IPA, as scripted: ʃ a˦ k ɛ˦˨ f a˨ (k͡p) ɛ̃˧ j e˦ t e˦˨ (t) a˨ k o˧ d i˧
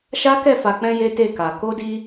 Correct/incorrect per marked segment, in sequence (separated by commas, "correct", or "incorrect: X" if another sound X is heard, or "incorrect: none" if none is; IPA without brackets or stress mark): correct, incorrect: k